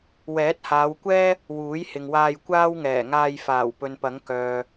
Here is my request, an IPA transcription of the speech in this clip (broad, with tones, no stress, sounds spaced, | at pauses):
w ɛː˨˥ t̚ h aː˨˧ w kʷ ɛː˥ | w uː˨˥ j h ɪ˨ ŋ w aː˧ j kʷ aː˥ w ŋ ɛː˨˩ ŋ aː˧ j f aː˨˩ w p ɵ˨ n p ɐ˨˥ ŋ k œː˨